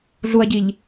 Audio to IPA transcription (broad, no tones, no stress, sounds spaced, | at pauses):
ɮ u ɐ̯ ɟ i ʎ